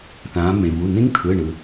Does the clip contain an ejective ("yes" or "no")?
no